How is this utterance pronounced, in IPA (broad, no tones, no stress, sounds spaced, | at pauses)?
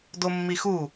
d o mː i x u